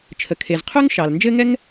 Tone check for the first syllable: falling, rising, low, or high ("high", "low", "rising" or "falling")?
low